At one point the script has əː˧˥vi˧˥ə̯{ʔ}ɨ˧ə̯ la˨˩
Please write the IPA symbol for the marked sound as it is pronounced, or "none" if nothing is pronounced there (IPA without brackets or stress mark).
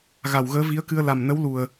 k